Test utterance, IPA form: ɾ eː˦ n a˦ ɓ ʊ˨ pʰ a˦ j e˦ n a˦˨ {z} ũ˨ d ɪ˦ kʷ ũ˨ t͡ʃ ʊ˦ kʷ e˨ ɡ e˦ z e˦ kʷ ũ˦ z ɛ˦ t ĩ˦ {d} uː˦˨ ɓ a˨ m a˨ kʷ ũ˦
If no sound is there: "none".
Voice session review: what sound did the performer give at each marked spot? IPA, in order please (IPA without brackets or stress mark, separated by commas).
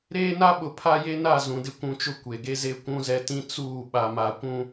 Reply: z, t͡s